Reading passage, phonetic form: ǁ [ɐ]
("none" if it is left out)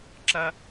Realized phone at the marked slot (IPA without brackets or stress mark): ɐ